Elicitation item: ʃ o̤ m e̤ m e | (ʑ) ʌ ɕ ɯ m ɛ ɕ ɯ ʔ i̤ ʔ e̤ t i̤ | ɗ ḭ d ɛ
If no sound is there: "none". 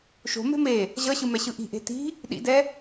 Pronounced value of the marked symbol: ʑ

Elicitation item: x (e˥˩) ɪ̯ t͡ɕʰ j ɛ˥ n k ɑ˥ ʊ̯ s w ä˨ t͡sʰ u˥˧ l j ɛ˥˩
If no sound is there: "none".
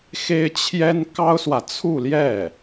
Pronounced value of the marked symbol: e˥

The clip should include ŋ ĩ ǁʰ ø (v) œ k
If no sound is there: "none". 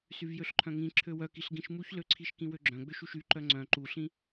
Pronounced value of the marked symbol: w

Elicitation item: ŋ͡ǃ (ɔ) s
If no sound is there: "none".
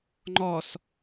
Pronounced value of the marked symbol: ɔ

